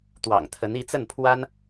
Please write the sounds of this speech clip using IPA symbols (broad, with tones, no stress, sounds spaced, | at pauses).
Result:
t̪ w ɑ̰˨˩ ŋ t̪ʰ ə˧˥ n i˧˥ t͡s ə˥˩ n pʰ w a˥ n